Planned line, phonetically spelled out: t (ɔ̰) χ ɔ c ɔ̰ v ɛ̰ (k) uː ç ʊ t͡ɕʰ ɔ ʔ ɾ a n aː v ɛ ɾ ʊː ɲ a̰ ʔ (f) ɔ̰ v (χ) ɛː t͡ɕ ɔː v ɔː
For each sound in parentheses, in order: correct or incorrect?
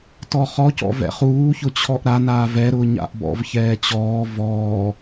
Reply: incorrect, incorrect, incorrect, incorrect

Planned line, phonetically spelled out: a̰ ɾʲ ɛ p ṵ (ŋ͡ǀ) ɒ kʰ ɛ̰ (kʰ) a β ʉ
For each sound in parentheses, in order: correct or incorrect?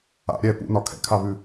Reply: incorrect, correct

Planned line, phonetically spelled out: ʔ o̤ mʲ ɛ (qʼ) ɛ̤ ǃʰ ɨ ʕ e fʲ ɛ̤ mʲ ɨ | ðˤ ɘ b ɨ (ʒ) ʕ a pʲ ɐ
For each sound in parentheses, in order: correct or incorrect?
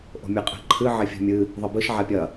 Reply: correct, incorrect

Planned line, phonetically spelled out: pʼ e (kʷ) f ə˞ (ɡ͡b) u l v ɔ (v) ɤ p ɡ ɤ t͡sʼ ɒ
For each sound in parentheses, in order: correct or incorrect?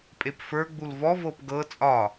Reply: incorrect, correct, correct

